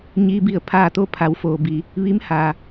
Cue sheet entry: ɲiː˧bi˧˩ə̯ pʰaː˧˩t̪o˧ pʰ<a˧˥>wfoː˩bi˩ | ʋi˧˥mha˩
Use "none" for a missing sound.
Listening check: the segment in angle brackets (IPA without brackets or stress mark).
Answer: a˩˧